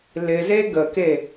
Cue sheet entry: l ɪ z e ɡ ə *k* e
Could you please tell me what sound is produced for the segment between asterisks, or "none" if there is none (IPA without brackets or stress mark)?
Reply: k